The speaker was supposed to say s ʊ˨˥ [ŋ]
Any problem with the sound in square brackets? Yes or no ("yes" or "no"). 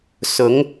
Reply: no